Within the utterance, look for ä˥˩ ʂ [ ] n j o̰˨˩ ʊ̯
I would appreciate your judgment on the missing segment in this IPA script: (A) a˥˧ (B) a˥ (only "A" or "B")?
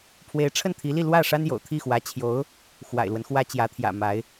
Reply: B